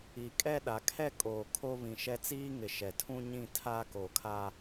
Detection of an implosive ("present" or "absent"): present